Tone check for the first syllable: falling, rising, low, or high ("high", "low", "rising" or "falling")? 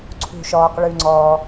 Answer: low